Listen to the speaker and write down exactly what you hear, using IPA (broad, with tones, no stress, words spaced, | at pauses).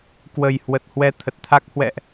kwə˨˩j hwə˨˩t̚ hwɛ˧t̪ʰə˨˩t̚t̪ʰa˦˥k̚ hwɛ̰˧˨ʔ